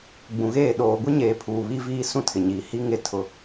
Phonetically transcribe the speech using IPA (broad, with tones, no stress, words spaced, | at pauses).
ɡ͡bũ˨ɣeː˦˨ ɗoː˨ɡʷi˦ɲeː˨ pʰuː˨βi˦viː˦sũ˦ tʰɪ˨ɲiː˨ hi˦ ŋe˦tʰʊ˦